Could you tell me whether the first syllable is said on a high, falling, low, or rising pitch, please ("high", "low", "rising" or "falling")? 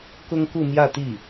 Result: high